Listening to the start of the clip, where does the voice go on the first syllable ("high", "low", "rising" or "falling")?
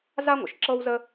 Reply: high